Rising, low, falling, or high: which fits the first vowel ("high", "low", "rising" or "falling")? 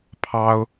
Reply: high